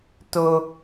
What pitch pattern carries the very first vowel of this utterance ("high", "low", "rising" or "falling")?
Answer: high